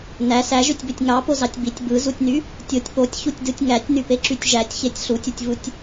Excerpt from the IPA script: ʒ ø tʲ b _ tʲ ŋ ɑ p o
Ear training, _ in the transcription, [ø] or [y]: ø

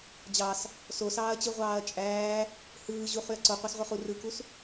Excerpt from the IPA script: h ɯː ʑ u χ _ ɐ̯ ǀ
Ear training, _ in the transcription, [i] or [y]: y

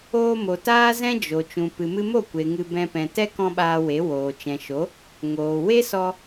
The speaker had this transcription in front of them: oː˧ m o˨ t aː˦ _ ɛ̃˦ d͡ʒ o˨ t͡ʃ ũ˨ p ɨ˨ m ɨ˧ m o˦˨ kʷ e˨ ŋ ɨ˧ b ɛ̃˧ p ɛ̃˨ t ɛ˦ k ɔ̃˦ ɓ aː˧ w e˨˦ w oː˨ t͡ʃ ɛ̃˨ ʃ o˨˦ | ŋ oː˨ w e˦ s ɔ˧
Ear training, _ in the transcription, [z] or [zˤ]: z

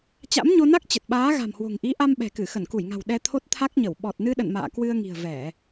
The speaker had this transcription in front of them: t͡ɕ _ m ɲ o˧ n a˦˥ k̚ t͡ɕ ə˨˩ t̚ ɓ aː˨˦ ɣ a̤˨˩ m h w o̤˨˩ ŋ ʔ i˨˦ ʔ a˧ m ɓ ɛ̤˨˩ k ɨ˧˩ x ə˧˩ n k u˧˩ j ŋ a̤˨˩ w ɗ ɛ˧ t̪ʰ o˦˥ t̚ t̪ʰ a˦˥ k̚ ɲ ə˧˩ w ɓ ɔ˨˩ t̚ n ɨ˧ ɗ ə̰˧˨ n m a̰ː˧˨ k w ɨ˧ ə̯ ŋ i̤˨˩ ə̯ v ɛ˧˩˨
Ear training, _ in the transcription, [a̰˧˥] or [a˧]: a̰˧˥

